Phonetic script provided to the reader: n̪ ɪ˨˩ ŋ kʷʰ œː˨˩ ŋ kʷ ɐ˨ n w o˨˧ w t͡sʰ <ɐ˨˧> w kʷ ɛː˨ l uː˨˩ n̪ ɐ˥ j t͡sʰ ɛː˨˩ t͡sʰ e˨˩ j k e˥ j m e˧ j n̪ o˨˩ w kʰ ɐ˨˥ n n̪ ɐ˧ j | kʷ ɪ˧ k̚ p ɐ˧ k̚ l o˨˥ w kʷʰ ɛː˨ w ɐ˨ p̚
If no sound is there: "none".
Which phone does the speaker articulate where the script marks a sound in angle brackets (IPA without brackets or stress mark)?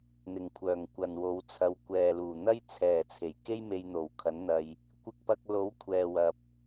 ɐ˨˧